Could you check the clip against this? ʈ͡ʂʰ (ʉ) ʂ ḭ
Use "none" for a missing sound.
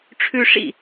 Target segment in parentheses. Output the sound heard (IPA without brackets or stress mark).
ʉ